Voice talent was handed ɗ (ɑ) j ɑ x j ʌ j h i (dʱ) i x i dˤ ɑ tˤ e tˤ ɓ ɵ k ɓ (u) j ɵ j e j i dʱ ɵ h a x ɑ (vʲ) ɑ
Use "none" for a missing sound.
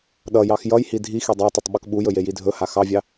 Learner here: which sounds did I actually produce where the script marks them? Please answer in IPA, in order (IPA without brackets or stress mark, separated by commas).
ʌ, dʱ, u, vʲ